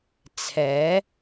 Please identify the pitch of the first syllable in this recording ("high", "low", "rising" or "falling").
rising